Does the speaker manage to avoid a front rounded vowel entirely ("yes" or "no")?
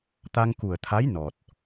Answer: yes